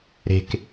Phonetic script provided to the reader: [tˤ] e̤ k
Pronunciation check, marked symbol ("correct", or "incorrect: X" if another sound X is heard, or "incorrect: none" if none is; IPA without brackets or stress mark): incorrect: ɾ